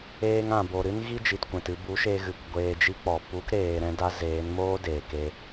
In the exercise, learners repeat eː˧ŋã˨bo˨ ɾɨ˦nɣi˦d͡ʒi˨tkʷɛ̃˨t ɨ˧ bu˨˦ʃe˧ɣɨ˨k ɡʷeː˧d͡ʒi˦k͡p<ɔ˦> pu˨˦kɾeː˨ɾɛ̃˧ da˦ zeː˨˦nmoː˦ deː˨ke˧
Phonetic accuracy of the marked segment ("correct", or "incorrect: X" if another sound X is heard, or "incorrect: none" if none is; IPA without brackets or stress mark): incorrect: ɔ˨